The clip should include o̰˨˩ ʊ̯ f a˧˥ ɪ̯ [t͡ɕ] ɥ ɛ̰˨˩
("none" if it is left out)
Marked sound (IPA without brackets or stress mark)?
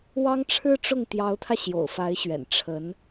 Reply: ɕ